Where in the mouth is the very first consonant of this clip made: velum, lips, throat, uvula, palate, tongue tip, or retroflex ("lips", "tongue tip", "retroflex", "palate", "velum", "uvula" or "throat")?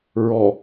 tongue tip